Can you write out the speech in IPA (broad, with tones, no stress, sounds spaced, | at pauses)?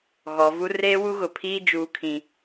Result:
ɣ ɔ˨ v u˦ r eː˦ w u˦ ɣ ʊ˨ pʰ iː˦ d͡ʒ uː˦ kʰ ĩ˦